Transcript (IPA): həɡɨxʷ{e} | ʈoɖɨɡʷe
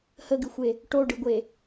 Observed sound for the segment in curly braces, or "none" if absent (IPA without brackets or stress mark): e